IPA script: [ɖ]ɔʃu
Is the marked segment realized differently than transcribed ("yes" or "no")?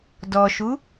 yes